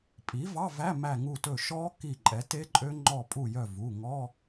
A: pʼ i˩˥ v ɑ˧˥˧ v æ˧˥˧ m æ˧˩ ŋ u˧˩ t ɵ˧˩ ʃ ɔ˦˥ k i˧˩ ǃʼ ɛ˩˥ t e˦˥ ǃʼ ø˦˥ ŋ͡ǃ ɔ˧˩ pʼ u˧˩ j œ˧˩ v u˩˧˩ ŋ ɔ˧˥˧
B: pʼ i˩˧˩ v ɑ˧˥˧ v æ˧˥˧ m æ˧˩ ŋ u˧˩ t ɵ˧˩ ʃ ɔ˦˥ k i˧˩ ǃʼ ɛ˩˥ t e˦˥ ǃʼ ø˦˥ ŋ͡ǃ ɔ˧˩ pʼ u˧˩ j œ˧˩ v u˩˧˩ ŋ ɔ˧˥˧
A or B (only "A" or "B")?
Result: A